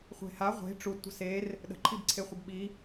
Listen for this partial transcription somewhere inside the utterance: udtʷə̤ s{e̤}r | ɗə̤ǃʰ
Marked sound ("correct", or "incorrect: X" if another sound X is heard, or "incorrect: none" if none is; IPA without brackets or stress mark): incorrect: e